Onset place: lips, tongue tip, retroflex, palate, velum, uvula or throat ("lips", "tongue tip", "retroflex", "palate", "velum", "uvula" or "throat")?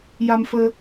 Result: palate